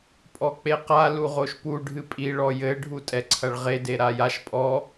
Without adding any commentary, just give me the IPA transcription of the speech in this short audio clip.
pʼ ɔ k͡p e q a l u ʁ o ʃ p u ɖʱ ɨ pʼ i ɭ ɔ j ɘ ɖʱ u tʼ ɛ ǀʰ ɐ ɭ ʁ e d e ɾ a j a ʃ pʼ ɔ

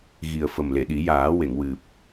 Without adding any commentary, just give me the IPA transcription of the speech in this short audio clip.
ɣ i˨˩ ə̯ f ə˨˩ m l e˨˩˨ ɗ i˨˩˦ j aː˨˩˦ w e˨˩˨ ŋ w ɨ˨˩ p̚

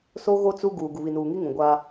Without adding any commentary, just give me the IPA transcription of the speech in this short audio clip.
s o˦ ɣ o˦ t͡s u˦ ɡ uː˨ ɡ u˨ β i˨ n uː˨ ŋ i˦ ŋ ũ˨ ɡʷ aː˦

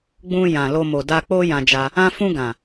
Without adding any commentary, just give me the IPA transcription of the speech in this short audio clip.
ɡ͡b ũ˧ j ã˨ l o˧ m o˨ d a˧ k͡p o˦ j ã˧ d͡ʒ a˧ | ã˧ f ũ˧ ɡ ã˨

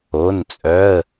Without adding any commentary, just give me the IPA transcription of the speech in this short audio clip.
o˩˧˩ n t͡sʼ œ˩˧˩ ə̯

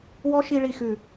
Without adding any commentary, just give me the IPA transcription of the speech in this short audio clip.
w ɔ˦ ʃ i˧ ɭ i˨ x ʉ˨

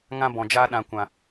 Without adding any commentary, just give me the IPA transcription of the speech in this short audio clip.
ŋ ã˧ b ɔ̃˨ d͡ʒ aː˧ ɗ ã˨ kʷ ã˨

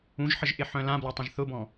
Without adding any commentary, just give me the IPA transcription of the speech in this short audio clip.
ũ ʒ ħ ə ʒ ʔ ɪ ħ œ̃ l ã b l ɐ tˤ ə̃ ʒ θ ʊ b ɔ̃

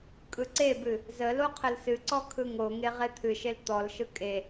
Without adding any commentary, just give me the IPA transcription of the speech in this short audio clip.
kʼ ɯ ǀ e b ɨ | z ə l o qʰ ə l s ɨ ǀ ɔ kʰ ɯ ŋ o ŋ e ʁ e t̪ʰ ɨ ʃ e l t̪ ɔ l ʃ ɯ kʼ e

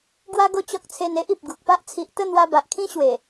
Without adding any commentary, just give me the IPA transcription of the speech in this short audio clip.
ɡ w a˦ ɡ o˥˧ t͡ɕ ɔ˦ k̚ t͡sʰ e˧ n e˦ ʔ i˨ p̚ ɡ u˨ k̚ p a˦ ʔ t͡sʰ i˨ ʔ t̪ ə˥˧ n̪ w a˧ b a˨ ʔ kʰ ĩ˦ ɕ w e˨˩

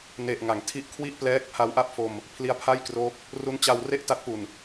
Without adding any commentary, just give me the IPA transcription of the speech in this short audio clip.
n e˨˩ ʔ ŋ a˩˦ ŋ tʰ i˦˥ ʔ kʰ w i˥˩ ʔ p l ɛː˦˥ k̚ pʰ a˦˥ w ʔ a˥˩ p̚ f o˧ m | pʰ l i˦˥ a̯ pʰ a˥˩ j k r oː˦˥ k̚ | r u˦˥ n t͡ɕ a˧ w r e˥˩ ʔ t a˦˥ t̚ p u˨˩ n

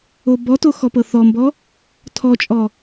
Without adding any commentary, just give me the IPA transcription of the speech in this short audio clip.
o b ɔ t o x ɔ p ɤ θ ɔ m b ɔ | tʰ ɔ t͡ʃʼ ɔ

